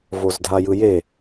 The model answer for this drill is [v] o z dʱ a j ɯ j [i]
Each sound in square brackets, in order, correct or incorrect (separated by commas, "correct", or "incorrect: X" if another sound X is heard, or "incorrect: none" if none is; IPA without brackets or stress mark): correct, incorrect: e